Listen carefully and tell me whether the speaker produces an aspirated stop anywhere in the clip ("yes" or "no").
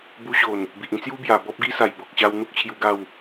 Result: yes